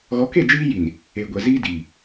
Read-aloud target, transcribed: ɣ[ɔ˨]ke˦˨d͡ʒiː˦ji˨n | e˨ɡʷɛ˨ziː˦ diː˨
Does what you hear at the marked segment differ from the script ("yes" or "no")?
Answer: yes